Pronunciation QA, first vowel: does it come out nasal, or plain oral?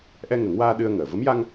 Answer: oral